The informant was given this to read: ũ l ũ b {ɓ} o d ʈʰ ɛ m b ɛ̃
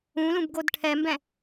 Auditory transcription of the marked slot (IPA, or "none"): ɡ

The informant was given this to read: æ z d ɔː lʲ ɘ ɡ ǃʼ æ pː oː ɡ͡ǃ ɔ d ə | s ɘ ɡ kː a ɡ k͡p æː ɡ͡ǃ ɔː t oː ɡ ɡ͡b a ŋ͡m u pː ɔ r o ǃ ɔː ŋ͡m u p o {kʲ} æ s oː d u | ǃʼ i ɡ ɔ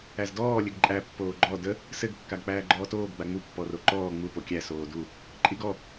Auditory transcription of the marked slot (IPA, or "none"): kʲ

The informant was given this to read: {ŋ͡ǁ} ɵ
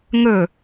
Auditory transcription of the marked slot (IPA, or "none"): ŋ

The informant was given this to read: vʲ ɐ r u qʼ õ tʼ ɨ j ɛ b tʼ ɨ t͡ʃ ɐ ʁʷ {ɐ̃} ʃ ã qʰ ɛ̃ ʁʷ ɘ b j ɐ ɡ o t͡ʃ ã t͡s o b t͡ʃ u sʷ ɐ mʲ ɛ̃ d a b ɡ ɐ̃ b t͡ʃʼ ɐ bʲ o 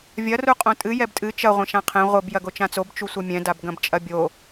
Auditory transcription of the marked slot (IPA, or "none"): ɐ̃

